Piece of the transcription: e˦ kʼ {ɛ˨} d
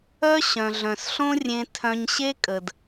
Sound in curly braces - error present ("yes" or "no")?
yes